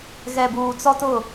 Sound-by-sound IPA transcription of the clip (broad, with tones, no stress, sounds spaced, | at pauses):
ɣ ɛ˨ b uː˨ t͡s ɔ˦ t ʊ˦˨